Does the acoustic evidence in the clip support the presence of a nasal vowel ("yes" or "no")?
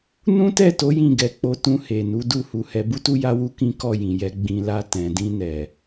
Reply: yes